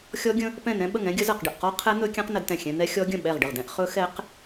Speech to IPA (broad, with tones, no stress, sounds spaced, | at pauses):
xʲ ɔ˦˥ ɡʲ ə̃˦˥ | p ɛ̃˥˩ n ɛ̃˦˥ ɓ ə˥˩ ŋ ɛ̃˦˥ ɡʲ ə˦˥ z ə˥˩ q ɖ ə˥˩ ʔ q ɔ˦˥ qʰ ɛ˦˥ n̪ ɵ˦˥ kʲ ɛ̃˦˥ q n ə˦˥ d t ɛ̃˥˩ xʲ ɛ̃˦˥ n̪ ɛ˦˥ xʲ ɔ˦˥ ɡʲ ə̃˥˩ ɓ ɛ˥˩ ʁ ɖ ə˥˩ ʁ d ɛ̃˦˥ ʔ χ ɵ˦˥ x ɛ˦˥ q